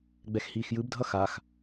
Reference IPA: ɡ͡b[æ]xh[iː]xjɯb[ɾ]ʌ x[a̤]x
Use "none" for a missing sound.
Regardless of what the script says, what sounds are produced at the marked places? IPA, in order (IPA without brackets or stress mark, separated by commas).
ɛ, iː, dʱ, a